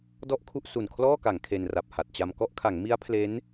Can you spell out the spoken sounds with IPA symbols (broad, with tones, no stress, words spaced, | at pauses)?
dɔ˥˩ʔkʰu˥˩ʔ su˨˩nkʰlɔː˥˩ka˩˦ŋ kʰe˧nra˨˩p̚ha˨˩t̚t͡ɕa˧m kɔ˦˥ʔkʰa˩˦ŋ mi˦˥a̯ pʰle˦˥n